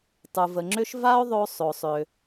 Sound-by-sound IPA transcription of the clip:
tˤ u˩ v ə˩ ŋ͡ǁ ʏ˥ ʃ v a˥ o̯ ðˤ o˧ sˤ o˩ sˤ ʏ˩

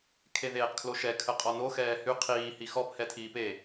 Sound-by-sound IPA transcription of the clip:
kʰ e ð eː q kʰ l o ʃ ɛ kʰ ə qʼ ɔ n o x ɛː h y qʰ iː h i x ɔ p h ɛ tʰ iː p e

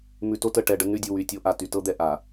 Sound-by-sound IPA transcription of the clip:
m ʉ˨ t o˦ t ə˨ ʈ ɛ˨ ɖ ə˦ nː ʉ˦ dʲ u˨ w y˨ tʲ o˦ ʔ a˨ t y˨ t ɤ˦ d̪ ɛ˨ ʔ a˨

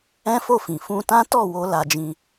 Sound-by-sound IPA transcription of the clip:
ɛ̃˦ f o˦˨ f ĩ˨ f ũ˧ t ã˦ t ɔ˦˨ w o˧ l a˧ d͡ʒ ĩ˧

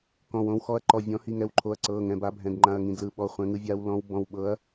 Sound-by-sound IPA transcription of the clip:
k ɔ̃˩˧˩ w õ˨˦ w x ɔ˨˦ ɐ̯ ǃ ɔ˩˧˩ vʲ ɔ̃˨˦ h i˩˧˩ ŋ ɛ˩˧˩ w ǃʰ o˩˧˩ ɐ̯ ǀ ɤ˩˧˩ ŋ ɛ̃˩˧˩ b a˨˦ bʱ ɛ̃˩˧˩ d ŋ͡ǃ ã˩˧˩ ɐ̯ ŋ ĩ˩˧˩ d l ɯ˩˧˩ ɓ ɔ˩˧˩ χʷ ɛ̃˨˦ ŋ ɯ˨˦ vʲ a˨˦ w l ɔ̃˨˦ w b ɔ̃˩˧˩ w ɓ ɤ˨˦ ɐ̯

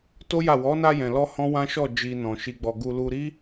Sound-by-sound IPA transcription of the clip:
t o˦ j a˦˨ w ɔ˨˦ n a˧ j ɛ̃˨ l ɔ˧ h ɔ̃˦ w ã˦ ʃ ɔ˦˨ d͡ʒ i˨ n ɔ̃˨ ʃ i˧ ɡ͡b ɔ˧ ɡ u˧ l u˧ ɾ i˦

